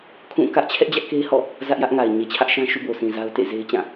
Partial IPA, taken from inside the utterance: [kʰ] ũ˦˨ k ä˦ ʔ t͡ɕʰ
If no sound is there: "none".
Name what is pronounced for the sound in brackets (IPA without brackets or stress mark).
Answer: kʰ